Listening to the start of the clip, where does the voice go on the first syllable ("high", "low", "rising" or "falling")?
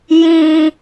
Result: high